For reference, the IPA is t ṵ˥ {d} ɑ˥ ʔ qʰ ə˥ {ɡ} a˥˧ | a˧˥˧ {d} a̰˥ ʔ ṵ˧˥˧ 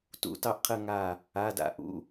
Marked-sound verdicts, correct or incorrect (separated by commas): incorrect, incorrect, correct